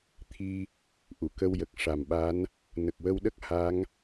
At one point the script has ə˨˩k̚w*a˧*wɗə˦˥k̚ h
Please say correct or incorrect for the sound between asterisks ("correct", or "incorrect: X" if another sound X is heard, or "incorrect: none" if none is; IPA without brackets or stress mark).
incorrect: ə˧